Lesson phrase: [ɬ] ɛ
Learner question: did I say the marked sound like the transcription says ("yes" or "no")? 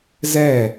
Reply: no